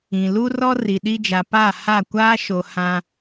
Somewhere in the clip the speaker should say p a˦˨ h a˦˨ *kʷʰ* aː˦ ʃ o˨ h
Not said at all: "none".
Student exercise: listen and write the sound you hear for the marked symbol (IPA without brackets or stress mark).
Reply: kʷ